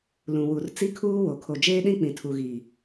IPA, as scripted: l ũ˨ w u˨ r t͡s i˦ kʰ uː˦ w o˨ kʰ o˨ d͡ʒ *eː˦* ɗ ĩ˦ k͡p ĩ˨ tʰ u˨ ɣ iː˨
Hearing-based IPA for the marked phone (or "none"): eː˦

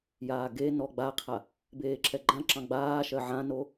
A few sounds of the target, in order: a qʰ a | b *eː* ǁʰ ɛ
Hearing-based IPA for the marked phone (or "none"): eː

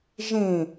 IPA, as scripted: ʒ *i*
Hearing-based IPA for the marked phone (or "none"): ĩ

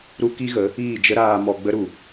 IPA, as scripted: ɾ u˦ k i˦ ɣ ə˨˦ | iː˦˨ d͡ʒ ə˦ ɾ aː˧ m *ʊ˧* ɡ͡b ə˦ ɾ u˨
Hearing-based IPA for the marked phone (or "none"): ɔ˧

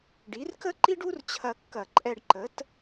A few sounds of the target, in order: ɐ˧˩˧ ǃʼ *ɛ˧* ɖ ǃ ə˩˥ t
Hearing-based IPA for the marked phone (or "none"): ɛ˧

